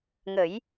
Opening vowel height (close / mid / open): mid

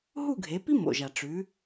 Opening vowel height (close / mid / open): close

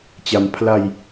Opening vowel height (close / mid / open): open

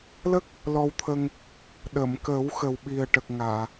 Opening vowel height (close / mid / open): mid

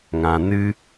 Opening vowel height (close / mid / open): open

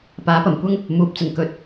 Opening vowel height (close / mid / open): open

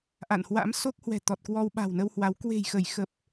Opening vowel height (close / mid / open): open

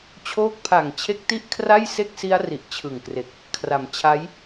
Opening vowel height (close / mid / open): mid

